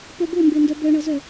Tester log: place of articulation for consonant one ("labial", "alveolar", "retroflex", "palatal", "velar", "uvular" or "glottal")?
labial